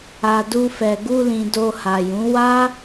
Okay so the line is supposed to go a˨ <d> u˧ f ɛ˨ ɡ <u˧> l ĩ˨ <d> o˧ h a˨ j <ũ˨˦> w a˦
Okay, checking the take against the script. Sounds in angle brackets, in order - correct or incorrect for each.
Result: correct, correct, correct, correct

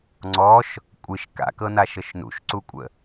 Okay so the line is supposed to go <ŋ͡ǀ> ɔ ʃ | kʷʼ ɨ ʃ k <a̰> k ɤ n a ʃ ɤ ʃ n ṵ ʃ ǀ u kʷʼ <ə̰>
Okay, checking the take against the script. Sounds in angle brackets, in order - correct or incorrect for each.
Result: correct, correct, correct

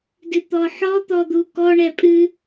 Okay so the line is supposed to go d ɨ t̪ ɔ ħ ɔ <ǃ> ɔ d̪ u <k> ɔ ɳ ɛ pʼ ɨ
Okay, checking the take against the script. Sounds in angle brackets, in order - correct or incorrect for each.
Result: incorrect, correct

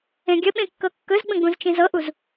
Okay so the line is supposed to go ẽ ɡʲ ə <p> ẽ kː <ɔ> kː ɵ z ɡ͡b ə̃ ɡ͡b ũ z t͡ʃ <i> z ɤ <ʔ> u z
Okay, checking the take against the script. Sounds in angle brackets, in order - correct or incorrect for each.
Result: incorrect, incorrect, incorrect, correct

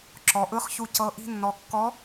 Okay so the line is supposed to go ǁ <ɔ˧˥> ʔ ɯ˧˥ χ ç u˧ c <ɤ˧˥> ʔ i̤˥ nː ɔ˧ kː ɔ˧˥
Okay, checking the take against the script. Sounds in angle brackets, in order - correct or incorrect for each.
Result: incorrect, correct

